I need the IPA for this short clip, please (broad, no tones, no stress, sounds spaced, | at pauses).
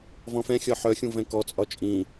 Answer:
v ɔ̃ f ɛ̃ xʲ ɒ ħ œ xʲ ũ v ɛ̃ k ɔ t͡sʼ ɒ t͡ʃʼ ĩ